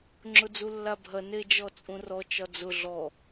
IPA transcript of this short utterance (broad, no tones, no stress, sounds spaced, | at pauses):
ŋ͡ǁ ʊ d͡z u lː a bʱ ɐ n e d͡ʒ ɔ t͡sʼ ũ r ɔ t͡ʃ ɒ d͡z ʊ ɮ ɔ